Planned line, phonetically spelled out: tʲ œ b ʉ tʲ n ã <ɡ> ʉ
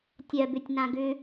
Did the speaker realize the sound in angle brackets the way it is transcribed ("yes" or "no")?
yes